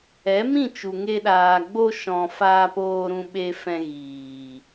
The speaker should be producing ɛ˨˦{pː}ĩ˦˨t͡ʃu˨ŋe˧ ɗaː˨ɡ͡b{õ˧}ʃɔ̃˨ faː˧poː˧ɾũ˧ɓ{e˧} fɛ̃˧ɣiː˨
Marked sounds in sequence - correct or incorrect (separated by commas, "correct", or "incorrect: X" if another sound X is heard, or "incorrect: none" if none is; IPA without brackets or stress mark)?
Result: incorrect: m, incorrect: o˧, correct